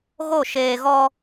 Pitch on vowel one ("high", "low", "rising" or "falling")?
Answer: falling